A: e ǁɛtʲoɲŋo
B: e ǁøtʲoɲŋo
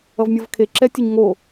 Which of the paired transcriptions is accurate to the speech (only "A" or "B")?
A